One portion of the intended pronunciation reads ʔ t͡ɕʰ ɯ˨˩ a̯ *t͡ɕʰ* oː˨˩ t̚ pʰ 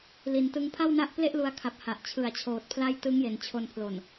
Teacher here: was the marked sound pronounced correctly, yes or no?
yes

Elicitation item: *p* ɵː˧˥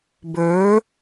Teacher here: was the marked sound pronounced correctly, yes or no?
no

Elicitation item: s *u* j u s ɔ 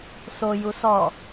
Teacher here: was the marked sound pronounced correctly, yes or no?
no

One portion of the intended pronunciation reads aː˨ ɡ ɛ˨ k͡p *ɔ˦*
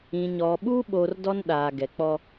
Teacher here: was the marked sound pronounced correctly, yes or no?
yes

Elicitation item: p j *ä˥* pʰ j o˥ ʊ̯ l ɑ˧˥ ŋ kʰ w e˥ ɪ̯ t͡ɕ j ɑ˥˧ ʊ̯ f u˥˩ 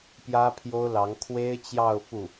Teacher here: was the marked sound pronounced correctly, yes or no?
yes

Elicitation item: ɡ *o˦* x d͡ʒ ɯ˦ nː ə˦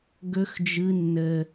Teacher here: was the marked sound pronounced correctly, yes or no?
no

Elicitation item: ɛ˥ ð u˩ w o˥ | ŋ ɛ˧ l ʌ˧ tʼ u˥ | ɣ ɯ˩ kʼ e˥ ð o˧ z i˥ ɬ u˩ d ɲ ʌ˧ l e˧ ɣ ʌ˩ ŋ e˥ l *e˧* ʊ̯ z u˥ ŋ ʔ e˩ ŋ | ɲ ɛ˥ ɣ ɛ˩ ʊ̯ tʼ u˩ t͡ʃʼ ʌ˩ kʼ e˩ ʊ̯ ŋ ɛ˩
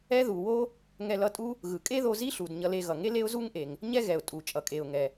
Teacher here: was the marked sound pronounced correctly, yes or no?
no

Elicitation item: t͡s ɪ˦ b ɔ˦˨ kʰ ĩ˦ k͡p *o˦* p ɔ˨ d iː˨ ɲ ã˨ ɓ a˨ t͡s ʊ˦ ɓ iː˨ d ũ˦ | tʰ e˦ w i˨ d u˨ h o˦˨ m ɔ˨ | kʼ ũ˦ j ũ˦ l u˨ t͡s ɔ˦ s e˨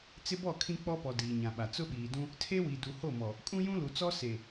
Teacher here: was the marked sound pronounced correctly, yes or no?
no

